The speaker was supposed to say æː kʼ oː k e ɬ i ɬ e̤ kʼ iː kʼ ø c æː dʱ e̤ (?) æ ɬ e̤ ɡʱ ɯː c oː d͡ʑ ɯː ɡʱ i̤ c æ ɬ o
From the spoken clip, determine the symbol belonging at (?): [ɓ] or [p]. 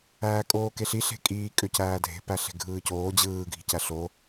p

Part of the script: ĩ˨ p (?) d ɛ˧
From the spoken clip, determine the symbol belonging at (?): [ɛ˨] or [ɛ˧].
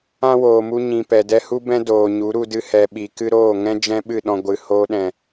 ɛ˨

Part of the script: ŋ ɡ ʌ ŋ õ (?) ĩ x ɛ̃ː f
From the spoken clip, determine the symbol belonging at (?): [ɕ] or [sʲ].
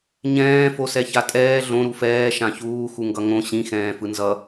ɕ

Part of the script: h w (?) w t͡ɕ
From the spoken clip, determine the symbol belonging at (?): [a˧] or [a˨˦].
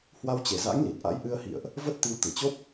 a˧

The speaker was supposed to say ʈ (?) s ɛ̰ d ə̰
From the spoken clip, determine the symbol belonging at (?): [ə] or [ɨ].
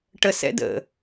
ə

